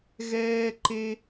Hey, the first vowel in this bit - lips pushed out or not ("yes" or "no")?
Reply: no